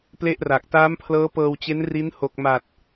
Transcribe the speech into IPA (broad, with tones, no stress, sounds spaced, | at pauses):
p l e˥˩ ʔ r a˨˩ k̚ t aː˦˥ m pʰ l ɤː˦˥ p ɤː˧ w t͡ɕ e˦˥ n r i˦˥ n h o˨˩ k̚ m a˨˩ t̚